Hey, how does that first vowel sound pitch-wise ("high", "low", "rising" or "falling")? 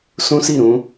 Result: high